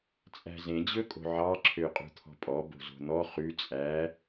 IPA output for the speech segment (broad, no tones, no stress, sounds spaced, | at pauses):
t͡sʼ æ̤ z ẽ d͡ʑ ɵ kʼ o̤ ʕ ɑ ǁʰ ø qʼ ṳ t̪ʰ ɔ̤ pʼ ɔ b o̤ z o̤ n̪ ɔ χ ʉ t͡sʼ æ